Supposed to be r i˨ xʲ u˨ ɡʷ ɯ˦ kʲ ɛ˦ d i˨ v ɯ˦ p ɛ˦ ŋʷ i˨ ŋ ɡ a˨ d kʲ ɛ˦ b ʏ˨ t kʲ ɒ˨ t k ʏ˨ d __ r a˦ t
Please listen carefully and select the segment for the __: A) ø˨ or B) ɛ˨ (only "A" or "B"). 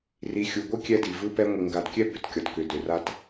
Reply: A